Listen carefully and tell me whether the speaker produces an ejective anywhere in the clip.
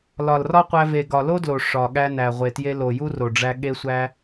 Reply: no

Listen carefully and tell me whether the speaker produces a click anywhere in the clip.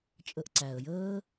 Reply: yes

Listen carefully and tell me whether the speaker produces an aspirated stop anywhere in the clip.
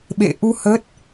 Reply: no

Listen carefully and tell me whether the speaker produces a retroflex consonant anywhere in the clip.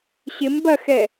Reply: no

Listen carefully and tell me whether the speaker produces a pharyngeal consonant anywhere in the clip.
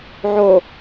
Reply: yes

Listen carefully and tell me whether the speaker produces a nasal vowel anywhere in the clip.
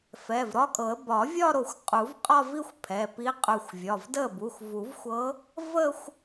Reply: no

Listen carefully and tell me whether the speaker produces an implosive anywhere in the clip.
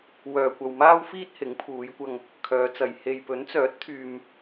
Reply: no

